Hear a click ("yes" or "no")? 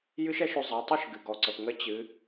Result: yes